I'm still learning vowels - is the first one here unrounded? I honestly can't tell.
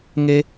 yes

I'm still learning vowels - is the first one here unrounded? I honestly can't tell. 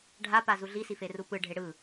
yes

